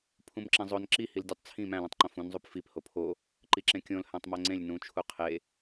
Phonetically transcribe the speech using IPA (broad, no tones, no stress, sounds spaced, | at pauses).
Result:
pʰ ũ m ǁ ẽ zˤ o n ǁ i h i l dʲ o tˤ t͡sʰ ĩ m æ̃ l ẽ tˤ ǃ õ f ũ n zˤ u p f i p h o pʰ o | ǃ i ǁ ẽ kʲ õ l h æ̃ tˤ m o ŋ͡ǀ ẽ lʲ n ũ t͡ʃʰ u qʰ e